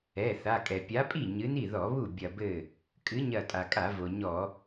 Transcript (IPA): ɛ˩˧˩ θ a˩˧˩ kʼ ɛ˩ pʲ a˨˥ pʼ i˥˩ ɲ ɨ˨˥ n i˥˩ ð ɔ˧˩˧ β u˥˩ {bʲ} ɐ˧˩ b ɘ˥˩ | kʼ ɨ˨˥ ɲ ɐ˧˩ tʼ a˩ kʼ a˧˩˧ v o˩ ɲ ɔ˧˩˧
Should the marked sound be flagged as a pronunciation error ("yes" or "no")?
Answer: no